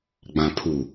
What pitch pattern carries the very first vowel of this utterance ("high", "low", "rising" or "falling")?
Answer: low